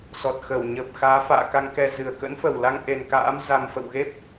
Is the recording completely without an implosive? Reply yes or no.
yes